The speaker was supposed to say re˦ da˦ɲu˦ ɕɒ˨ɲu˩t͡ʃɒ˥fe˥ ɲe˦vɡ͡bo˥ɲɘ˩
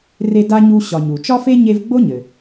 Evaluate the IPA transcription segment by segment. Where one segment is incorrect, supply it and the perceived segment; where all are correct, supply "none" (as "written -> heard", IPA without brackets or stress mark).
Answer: a˦ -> a˥